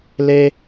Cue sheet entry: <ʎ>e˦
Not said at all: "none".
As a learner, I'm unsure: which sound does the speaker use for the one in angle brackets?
l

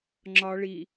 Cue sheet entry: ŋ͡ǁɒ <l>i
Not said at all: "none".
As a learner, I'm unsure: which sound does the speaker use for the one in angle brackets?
ɭ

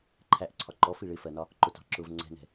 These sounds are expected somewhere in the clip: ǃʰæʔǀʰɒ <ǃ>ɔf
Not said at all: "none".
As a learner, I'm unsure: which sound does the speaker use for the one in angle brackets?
ǃ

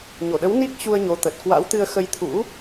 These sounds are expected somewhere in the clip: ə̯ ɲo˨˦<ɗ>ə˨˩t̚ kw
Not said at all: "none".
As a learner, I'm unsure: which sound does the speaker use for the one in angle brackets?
t̪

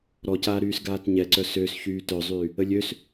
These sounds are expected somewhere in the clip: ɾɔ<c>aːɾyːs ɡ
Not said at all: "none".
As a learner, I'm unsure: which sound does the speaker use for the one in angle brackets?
c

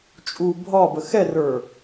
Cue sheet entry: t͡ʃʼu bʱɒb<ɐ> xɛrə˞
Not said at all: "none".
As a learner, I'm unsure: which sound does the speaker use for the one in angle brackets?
ə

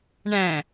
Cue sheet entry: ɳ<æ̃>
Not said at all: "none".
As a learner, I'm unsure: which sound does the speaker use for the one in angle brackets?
æ̃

